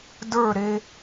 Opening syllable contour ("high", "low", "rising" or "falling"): falling